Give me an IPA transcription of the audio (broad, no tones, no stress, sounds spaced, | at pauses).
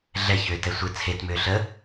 ɮ ɛ ç ʏː t ɛ sʷ ɨ t͡sʰ e t m ʏː ɬ ə